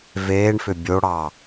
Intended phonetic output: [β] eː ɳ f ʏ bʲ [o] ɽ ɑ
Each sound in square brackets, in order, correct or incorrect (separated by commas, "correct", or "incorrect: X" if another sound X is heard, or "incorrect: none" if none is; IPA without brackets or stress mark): incorrect: v, correct